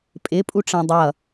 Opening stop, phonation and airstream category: ejective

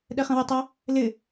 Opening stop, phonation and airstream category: implosive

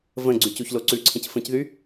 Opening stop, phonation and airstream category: click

